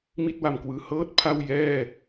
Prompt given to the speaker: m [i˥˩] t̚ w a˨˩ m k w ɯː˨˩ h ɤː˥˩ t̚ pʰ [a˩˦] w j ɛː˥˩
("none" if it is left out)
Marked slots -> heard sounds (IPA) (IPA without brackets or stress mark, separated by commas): i˥˩, a˥˩